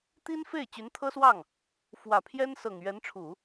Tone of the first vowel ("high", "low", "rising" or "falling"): high